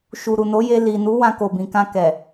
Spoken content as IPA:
ʃ u˨ ɾ u˨ n o˨˦ j e˧ l i˨ n u˨˦ w ã˧ k o˨ b ĩ˨ k ã˧ k ɛ˨

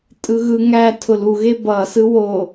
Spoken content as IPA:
tʼ ɯ ɣ ɯ ŋ æ tʰ ʊ l u ɣ e b ʌ s ɯ w o

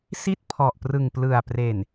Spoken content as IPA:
s i˥˩ t̚ pʰ ɔ˨˩ ʔ p r ɯ˨˩ ŋ p l ɯ˨˩ a̯ p r eː˨˩ n

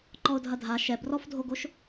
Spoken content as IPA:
ǃ ɔ ʊ̯ dʱ ɐ dʱ a ʃ ɛ b r ɔ f dʱ o ɡ o ʃ

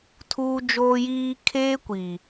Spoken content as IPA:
tʰ uː˦ d͡ʒ oː˦ j iː˦ kʰ eː˦ kʷ i˨

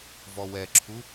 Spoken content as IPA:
v ɔ w ɛ ǁʰ u

